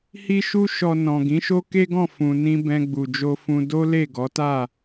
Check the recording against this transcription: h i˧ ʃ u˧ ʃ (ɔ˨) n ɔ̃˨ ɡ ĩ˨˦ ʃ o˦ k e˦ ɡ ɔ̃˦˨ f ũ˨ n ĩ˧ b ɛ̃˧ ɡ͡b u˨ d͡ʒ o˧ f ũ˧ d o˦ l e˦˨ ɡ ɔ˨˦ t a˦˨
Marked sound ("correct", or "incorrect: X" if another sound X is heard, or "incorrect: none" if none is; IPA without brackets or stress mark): correct